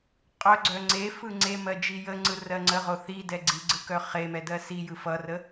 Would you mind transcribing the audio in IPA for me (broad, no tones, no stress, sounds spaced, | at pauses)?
qʼ œ ɡ͡ǀ œ ŋ͡ǀ e f ɯ ŋ͡ǀ e m ɜ d͡ʒ i j ə ŋ͡ǀ ɯ r ɜ ŋ͡ǀ ə ʁ o θ i d ɛ ɡ͡ǀ i ɡ͡ǀ ɯ k œ χ e m ɛ d ɜ s i j ɯ f ʌ r ə